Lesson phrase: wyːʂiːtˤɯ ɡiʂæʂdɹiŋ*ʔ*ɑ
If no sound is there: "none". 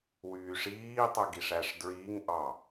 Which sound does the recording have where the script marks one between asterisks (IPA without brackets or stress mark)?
ʔ